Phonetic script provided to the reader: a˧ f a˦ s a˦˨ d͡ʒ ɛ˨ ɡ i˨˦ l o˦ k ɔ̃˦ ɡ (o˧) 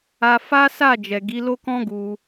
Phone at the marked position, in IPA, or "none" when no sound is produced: u˧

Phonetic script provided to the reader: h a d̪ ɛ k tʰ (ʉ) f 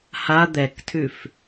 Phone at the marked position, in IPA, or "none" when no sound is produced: ʉ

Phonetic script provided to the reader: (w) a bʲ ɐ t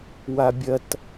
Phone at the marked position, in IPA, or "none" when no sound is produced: w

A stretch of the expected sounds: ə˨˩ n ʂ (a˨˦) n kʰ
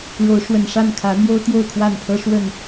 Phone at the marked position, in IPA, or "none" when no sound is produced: a˥˨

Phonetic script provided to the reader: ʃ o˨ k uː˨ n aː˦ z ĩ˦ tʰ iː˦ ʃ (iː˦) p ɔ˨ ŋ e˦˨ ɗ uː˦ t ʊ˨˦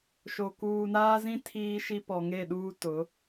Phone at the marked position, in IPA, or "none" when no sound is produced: i˦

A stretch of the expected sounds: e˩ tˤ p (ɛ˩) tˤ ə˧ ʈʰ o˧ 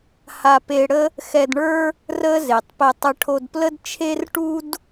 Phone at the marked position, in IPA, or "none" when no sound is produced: ɛ˧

